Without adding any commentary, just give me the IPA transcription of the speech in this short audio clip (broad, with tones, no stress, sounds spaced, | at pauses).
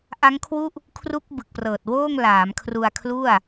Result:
ʔ a˦˥ ŋ kʰ w u˥˩ ʔ | kʰ r u˦˥ k̚ b ɯ˨˩ k̚ p r ɤː˨˩ t̚ w oː˥˩ ŋ l aː˩˦ m kʰ r u˧ a̯ kʰ l u˥˩ a̯